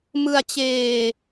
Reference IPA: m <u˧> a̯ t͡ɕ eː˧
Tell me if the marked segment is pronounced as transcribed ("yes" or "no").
no